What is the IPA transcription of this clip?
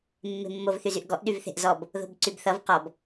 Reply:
mː e̤ mː o v θ y z y ʔ ɡ ɔ ʔ ɗ y v θ e̤ ʔ z ɔ b | ð o̤ b ǀ y b θ ʌ v q ɔ b

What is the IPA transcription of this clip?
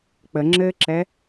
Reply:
k͡p ə ŋ͡ǁ ɘː ǁ ɛ

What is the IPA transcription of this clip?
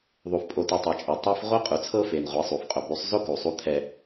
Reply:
ðˤ u˨ f pʼ o˨ t u˨ tˤ e˨ t͡ʃʼ ɛ˨ tˤ e˦ f ʁʷ ɤ˦ qʼ u˨ t͡sʰ ɤ˦ f e˨ n ʁʷ e˨˦ sˤ u˨ f qʼ o˨ b u˨˦ sˤ z o˦ k u˨ sˤ u˦ t̪ʰ ɛ˦

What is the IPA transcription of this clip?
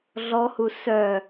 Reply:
ɮ ɔ h u s œ

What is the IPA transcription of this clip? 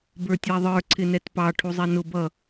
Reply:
b ə˞ tʲ æ ðˤ ə˞ ǀʰ ɪ n ɛ t p ɑ ʈʰ u zˤ ɛ n ʊ b ʌ

